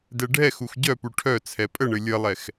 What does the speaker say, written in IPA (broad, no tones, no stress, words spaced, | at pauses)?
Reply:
dɛɖʱɛxux ɟœpu ʈʰœ t͡sʰɛpʼəɳɘ lʲəlˠɛx